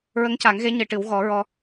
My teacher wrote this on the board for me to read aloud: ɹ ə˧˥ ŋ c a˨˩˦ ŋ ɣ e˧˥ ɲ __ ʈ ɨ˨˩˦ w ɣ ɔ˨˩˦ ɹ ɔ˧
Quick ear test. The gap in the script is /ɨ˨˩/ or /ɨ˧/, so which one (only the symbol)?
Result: ɨ˨˩